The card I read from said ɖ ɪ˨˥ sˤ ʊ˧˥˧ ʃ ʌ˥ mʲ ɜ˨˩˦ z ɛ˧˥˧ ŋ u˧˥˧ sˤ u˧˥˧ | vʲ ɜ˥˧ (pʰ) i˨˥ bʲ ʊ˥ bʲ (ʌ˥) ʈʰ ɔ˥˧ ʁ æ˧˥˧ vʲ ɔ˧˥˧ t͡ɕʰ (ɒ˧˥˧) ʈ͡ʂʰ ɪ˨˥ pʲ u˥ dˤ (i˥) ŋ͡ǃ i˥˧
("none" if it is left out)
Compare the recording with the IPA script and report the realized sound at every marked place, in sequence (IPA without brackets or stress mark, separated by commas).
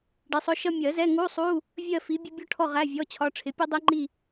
f, ɔ˥, ɒ˧˥˧, i˥